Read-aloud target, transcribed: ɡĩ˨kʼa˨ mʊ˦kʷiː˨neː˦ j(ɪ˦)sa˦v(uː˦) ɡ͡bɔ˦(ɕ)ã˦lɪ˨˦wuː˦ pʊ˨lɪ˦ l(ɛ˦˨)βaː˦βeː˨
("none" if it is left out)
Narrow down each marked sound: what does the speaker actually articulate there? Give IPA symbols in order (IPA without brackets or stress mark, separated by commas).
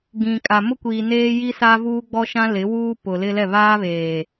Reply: i˦, uː˦, ʃ, ɛ˦˨